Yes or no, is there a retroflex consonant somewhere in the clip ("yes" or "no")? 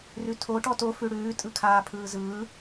yes